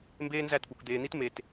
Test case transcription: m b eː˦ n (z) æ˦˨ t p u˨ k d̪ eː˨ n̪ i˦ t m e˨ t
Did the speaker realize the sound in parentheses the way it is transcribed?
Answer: yes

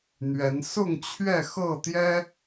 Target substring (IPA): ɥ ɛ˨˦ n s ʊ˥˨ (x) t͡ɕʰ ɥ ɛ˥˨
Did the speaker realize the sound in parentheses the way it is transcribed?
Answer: no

